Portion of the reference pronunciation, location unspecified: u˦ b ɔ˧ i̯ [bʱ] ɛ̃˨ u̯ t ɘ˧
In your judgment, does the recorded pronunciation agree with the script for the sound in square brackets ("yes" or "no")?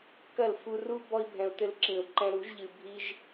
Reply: yes